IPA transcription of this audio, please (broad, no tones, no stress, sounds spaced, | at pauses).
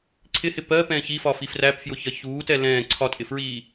ǀʰ ɪ h ɪ p ɜ p ɛ̃ː ç i f ɒ f i f r æ p f j ʊ ç ɜ ç uː t ɛ l ɛ̃ː ǀʰ ɒ tʼ ɪ f ɹ iː